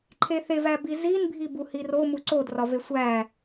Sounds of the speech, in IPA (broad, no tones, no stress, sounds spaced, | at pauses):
ǃʰ e θ e v æ b i z i n bʱ i b u h i r o m u ǀ o d r ɒ v e sʷ æ